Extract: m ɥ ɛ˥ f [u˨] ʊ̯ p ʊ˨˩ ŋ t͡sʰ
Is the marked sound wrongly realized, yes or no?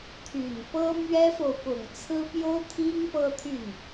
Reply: yes